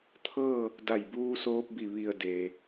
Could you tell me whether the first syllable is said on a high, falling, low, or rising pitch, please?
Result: falling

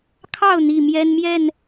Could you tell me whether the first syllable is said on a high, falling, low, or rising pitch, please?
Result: falling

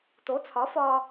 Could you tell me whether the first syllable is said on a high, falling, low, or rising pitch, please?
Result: rising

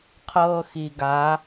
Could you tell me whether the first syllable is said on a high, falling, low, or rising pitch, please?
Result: high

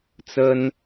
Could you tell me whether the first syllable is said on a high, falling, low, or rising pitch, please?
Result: high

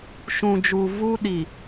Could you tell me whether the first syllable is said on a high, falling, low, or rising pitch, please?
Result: low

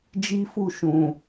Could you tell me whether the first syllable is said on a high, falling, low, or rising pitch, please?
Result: high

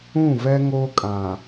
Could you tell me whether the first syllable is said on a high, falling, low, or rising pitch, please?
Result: falling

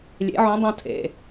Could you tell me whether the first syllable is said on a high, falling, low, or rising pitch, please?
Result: rising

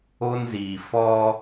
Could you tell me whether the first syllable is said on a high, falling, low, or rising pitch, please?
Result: high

